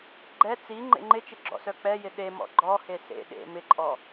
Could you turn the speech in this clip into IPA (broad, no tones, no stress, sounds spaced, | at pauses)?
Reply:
ɡ͡ǃ ɛ t͡s i ŋ͡ǃ ḛ ŋ͡ǃ ɪ t͡ʃ ɪ ɡ͡ǁ ɔ̰ s œ k͡p ɛ j ɪ ɗ e m ɔ̰ ɡ͡ǃ ɔ h e s ḛ ɗ ḛ m ɪ ǃʼ ɔ